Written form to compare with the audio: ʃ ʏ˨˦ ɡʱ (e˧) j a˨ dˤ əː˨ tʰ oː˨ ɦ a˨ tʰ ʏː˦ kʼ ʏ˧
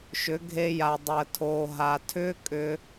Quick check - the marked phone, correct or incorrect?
correct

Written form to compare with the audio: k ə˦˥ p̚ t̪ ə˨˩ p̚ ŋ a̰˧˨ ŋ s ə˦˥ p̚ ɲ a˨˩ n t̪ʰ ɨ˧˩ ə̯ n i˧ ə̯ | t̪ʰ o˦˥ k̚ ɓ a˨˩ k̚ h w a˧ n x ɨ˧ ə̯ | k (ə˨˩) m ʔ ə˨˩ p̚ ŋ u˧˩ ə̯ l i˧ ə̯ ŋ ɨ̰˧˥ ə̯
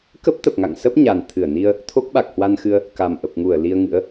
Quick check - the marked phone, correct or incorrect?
incorrect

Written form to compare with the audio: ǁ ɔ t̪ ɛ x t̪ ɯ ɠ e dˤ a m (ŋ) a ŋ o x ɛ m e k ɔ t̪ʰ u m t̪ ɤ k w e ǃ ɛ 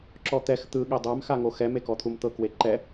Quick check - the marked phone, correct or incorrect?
incorrect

